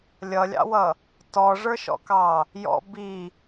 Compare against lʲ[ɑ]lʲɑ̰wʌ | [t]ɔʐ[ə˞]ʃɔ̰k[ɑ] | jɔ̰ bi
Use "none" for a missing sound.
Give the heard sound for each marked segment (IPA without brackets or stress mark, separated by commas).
ʌ, t, ə˞, ɑ